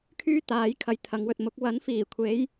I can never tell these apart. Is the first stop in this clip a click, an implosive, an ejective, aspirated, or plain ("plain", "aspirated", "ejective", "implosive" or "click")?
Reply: aspirated